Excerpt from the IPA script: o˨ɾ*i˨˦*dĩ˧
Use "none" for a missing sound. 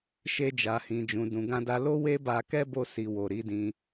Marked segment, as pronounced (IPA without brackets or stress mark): i˨˦